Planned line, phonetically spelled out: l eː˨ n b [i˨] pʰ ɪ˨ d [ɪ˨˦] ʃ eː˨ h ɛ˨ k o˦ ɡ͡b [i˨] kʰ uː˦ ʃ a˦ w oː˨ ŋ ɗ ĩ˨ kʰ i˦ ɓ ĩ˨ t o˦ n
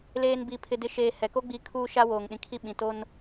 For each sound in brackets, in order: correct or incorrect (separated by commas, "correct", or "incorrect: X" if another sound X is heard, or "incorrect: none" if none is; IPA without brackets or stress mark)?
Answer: correct, correct, incorrect: i˨˦